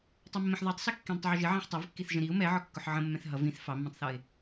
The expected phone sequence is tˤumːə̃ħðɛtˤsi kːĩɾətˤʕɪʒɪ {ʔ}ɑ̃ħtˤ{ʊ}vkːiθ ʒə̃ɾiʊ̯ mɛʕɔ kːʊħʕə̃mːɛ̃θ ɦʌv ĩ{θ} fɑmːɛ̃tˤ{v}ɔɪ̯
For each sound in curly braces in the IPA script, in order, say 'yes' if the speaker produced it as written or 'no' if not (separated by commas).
no, no, yes, no